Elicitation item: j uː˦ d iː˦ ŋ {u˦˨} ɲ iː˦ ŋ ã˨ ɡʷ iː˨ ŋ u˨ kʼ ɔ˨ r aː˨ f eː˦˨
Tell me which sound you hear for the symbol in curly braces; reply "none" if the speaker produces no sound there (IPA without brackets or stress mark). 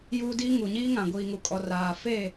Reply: u˨